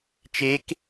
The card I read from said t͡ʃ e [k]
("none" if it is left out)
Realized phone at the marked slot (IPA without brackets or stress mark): k